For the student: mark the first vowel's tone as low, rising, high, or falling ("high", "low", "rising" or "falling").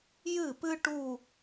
falling